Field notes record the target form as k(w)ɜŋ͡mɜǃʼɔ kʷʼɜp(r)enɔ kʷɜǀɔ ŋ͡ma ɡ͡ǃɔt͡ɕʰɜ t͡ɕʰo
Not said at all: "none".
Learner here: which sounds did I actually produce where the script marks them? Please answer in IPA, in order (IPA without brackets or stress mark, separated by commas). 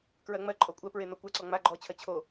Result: ɹ, ɹ